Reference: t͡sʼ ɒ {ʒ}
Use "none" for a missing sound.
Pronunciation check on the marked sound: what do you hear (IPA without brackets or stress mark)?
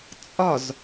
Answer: z